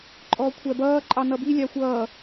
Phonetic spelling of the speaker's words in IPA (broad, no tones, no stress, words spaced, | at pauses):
ǃʼɔkʷʰæbʌː ǃʼɑnʌbi lʲɑxʷʌː